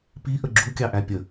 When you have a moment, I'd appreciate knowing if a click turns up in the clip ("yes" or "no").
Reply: yes